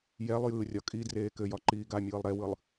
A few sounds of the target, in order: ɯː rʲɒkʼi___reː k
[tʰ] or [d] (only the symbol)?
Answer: d